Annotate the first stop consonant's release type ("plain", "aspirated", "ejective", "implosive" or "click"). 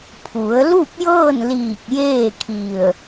aspirated